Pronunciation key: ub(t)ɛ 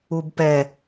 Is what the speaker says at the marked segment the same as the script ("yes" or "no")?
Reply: no